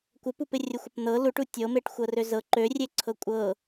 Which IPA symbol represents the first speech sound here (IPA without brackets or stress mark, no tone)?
kʷ